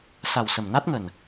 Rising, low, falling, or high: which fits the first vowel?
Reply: low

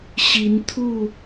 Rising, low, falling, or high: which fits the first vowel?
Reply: rising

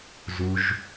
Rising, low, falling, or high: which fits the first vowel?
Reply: low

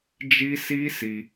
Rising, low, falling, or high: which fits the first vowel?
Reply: high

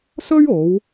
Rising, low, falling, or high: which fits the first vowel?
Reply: high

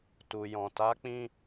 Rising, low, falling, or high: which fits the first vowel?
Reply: low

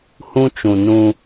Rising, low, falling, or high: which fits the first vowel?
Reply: high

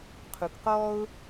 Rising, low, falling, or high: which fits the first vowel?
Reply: low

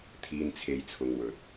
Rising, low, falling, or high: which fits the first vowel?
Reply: low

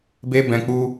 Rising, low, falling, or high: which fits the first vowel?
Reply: high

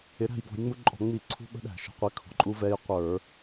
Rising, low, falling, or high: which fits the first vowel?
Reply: rising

